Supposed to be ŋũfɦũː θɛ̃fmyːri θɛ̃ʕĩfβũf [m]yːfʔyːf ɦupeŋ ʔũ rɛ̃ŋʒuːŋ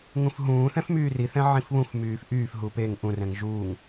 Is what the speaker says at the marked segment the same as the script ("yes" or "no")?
yes